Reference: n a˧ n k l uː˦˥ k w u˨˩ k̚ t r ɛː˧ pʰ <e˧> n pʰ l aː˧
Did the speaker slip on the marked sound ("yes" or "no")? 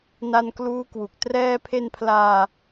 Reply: no